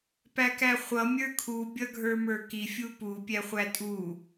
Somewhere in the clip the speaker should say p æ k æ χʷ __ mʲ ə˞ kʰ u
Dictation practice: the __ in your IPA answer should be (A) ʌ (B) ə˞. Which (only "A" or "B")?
A